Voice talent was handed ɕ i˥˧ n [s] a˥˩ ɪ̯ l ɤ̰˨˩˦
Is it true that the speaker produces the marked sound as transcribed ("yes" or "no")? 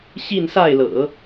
yes